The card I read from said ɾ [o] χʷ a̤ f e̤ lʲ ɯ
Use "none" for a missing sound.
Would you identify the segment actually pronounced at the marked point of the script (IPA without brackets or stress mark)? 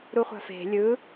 u